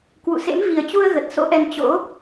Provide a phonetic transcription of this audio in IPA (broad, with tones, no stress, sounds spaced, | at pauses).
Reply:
k w ṵ˧˨ s ḛ˧˥ m v i˨˩ ə̯ t͡ɕ u˧ ə̯ ɣ ə˨˩ t̚ s o̰˧˥ ʔ ɛ˧ n t͡ɕ o̰˧˥